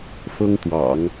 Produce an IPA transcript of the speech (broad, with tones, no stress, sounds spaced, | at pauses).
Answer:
f ɤ˥ ŋ t̪ w ɑ̰˨˩˦ ŋ